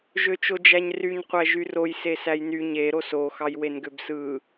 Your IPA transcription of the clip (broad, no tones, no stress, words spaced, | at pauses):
ʒøt͡ʃod͡ʒæɲryɲ qʷæʒyroj sesæjny ɲe ɾoso xɑjwenɡøbsɯ